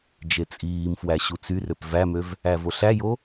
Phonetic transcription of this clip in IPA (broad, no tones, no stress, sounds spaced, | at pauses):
d͡ʒ e t͡sʼ iː m f w æ ɕ u t͡s y r ø p v æ m ø v | æ v o ɬ æ j o